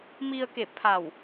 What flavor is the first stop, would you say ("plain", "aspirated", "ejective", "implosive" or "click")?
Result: plain